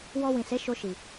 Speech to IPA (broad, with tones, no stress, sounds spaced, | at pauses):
w ɔ˧ w ĩ˨ s e˨˦ ʃ o˧ ʃ i˨